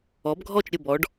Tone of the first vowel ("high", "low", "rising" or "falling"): rising